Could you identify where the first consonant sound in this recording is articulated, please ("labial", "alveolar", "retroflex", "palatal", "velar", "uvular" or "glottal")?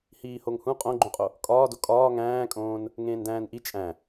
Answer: glottal